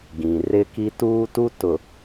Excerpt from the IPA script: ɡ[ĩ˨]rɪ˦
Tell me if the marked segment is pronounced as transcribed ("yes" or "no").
yes